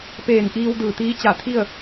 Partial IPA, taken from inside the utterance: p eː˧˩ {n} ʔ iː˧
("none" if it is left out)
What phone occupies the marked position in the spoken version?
n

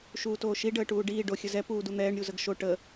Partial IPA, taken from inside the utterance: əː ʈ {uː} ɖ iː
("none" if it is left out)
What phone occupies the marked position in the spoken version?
uː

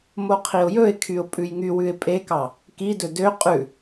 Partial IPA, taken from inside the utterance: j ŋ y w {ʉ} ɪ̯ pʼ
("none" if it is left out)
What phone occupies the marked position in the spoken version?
ʉ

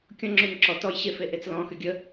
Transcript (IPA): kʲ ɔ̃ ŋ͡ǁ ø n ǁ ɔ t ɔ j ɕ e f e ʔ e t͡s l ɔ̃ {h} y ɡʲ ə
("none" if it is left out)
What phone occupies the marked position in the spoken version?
x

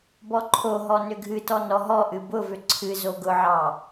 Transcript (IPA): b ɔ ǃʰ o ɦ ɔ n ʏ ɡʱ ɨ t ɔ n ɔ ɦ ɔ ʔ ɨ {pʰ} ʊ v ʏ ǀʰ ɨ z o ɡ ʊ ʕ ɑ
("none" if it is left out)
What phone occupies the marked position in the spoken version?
b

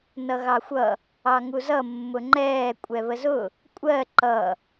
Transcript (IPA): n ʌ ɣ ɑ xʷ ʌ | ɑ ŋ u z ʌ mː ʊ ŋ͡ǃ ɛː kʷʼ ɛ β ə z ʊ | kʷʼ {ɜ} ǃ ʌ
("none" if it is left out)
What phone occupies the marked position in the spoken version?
ɜ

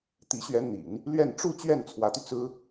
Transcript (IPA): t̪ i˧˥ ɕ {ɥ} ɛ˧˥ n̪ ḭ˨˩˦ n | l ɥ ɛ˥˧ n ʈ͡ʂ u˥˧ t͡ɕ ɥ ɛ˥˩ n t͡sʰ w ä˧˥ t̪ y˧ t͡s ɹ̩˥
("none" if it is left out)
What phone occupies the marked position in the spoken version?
ɥ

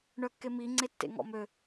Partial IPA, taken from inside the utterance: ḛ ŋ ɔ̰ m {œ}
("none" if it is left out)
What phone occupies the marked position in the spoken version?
ø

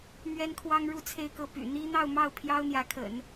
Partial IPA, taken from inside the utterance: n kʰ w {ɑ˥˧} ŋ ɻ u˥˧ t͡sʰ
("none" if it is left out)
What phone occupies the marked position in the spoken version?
ɑ˥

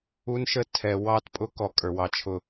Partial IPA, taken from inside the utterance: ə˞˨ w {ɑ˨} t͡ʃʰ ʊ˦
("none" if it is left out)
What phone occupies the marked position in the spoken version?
ɑ˦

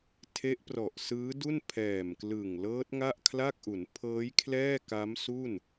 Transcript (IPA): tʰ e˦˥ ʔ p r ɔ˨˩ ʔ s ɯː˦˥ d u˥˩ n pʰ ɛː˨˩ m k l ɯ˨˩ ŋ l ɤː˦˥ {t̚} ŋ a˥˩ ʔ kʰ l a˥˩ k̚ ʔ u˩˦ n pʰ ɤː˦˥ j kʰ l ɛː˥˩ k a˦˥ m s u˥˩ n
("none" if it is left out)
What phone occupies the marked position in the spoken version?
t̚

